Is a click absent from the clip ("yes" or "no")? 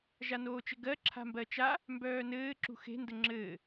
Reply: no